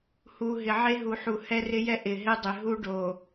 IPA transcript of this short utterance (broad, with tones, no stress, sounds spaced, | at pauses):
h u˨ ɦ ɪ˨ ʕ e˦ ɦ u˨ ħ u˨ h ɛ˦ r ɪ˦ j ɛ˦ ʔ ɪ˨ ɦ ɪ˦ dˤ ɪ˨ ɦ u˦ ɖ o˨